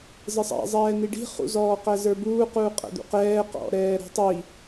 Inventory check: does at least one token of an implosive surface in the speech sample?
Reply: no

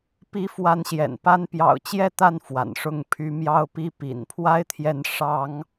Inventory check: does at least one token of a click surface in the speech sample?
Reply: no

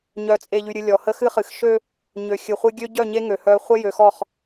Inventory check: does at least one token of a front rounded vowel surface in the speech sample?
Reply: yes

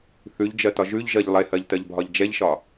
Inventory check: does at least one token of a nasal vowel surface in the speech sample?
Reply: no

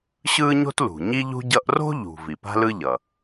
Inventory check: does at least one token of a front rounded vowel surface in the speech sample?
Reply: no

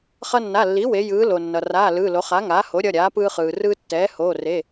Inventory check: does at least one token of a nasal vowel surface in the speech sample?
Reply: no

